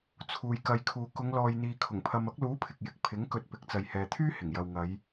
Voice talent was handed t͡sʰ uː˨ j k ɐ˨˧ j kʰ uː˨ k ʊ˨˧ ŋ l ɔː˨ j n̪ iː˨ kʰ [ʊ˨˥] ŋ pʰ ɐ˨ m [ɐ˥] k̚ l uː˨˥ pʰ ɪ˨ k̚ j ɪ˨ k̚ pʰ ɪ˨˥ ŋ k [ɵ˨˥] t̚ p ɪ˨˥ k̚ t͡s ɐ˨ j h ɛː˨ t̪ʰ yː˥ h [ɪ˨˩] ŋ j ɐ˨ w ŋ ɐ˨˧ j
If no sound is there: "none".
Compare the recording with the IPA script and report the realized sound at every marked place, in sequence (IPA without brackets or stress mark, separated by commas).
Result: ʊ˨˩, ɐ˨˥, ɵ˧, ɪ˨˩